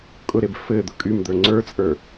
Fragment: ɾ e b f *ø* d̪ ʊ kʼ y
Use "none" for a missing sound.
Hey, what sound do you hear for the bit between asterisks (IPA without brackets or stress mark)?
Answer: ɘ